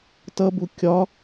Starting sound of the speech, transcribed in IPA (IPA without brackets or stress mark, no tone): t